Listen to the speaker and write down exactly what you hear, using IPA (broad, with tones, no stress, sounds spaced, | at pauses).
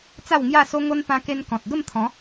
t͡s a˥˧ w ŋ j a˥˧ s o˦ ŋ o˦ n p ã˧ k e˧ n k ɔ̃˨ t̚ ɡ ə˥˧ m t̪ʰ ɔ̃˨˦